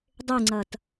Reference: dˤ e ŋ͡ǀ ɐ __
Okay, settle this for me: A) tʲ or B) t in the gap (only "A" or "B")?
B